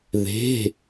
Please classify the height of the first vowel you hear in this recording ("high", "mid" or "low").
mid